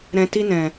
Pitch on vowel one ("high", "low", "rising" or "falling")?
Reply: low